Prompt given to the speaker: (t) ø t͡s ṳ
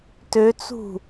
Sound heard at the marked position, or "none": t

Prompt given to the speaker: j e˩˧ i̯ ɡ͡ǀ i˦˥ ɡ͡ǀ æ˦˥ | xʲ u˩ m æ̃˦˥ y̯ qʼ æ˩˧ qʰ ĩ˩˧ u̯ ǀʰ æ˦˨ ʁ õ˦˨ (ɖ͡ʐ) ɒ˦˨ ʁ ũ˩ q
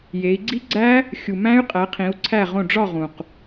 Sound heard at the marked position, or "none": ɖ͡ʐ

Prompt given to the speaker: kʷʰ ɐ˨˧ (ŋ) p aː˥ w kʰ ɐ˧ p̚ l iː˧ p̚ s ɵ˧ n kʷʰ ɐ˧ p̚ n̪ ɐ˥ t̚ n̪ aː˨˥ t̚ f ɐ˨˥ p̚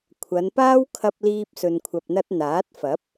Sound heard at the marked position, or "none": n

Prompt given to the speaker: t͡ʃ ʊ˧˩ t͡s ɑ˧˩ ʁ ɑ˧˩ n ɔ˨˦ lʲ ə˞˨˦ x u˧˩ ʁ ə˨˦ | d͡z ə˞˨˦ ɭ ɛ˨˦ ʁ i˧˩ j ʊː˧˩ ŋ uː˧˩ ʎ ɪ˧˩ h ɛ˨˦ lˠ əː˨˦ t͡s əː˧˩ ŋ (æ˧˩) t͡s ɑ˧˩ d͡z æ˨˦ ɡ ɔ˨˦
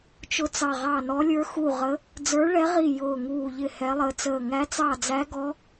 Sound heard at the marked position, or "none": æ˨˦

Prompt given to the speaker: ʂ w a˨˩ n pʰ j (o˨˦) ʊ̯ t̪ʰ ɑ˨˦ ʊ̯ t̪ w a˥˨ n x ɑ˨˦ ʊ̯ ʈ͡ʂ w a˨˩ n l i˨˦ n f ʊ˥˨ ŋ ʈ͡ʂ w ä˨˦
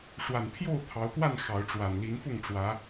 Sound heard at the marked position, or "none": o˥˨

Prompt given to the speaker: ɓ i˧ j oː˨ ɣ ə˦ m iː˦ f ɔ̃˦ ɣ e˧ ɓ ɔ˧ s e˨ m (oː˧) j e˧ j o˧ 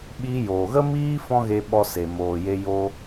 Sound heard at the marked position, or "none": oː˨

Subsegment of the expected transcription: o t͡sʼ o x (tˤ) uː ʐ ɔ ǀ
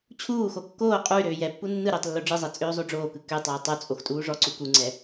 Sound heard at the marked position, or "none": tʼ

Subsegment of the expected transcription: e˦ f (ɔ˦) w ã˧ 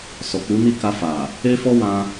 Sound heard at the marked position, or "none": ɔ˦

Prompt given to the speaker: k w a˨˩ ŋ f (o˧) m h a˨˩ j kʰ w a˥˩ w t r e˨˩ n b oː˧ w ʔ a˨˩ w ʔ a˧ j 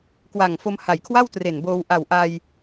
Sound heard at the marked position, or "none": o˧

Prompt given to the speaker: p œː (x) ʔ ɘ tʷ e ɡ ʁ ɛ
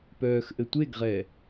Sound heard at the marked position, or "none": x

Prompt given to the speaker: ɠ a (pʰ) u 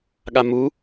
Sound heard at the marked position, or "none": m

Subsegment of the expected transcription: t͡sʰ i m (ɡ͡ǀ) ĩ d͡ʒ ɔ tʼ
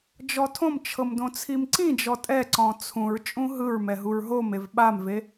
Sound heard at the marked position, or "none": ǀ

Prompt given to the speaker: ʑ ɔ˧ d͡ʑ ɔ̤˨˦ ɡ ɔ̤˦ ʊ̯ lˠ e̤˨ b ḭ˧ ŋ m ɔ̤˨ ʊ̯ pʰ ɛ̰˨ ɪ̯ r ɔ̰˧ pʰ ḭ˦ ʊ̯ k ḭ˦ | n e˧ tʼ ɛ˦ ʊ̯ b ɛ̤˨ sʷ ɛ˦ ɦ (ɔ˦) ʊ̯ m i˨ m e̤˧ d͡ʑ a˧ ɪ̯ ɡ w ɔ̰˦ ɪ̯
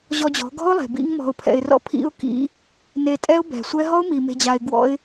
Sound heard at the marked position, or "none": ɔ˦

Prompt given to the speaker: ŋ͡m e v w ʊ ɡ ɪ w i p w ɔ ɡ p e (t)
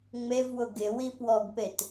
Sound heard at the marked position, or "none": t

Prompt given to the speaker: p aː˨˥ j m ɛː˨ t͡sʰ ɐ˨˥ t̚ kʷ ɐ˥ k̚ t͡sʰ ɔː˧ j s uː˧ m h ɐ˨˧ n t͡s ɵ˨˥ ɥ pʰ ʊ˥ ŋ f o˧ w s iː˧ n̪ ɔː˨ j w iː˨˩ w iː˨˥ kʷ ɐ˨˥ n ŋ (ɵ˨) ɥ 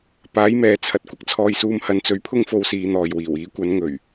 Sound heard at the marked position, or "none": ɵ˨˩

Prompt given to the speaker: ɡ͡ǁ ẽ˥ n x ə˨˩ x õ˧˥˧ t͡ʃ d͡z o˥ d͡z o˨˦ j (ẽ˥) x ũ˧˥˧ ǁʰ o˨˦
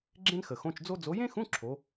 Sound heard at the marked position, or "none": ẽ˥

